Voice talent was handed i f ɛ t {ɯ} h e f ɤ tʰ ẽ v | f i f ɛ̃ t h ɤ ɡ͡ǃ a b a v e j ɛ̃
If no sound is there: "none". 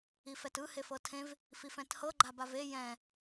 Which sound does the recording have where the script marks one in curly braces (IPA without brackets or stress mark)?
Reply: ɯ